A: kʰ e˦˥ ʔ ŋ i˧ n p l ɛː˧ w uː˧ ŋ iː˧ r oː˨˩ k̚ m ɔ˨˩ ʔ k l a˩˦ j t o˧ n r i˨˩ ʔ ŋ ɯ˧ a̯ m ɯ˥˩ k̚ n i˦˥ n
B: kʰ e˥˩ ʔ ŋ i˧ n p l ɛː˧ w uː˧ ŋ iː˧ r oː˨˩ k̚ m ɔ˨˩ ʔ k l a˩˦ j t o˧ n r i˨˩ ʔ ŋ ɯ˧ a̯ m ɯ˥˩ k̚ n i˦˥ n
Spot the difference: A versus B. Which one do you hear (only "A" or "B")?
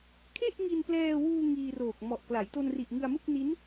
B